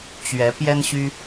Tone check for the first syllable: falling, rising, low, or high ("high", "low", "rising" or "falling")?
rising